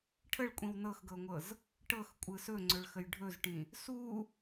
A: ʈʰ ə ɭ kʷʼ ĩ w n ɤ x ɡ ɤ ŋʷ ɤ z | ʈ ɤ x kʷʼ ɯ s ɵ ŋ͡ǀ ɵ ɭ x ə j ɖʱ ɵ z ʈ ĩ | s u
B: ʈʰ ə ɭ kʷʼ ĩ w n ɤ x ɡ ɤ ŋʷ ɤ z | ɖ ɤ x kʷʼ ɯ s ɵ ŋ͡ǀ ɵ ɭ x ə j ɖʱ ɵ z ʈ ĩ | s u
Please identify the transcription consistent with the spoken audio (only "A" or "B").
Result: A